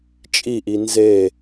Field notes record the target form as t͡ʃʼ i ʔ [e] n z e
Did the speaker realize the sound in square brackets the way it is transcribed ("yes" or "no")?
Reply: no